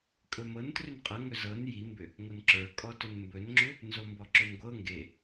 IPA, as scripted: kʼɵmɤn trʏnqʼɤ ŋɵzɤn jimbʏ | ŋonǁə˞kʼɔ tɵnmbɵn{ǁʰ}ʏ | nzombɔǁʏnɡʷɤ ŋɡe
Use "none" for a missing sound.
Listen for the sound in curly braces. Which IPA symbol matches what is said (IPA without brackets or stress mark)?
ŋ͡ǁ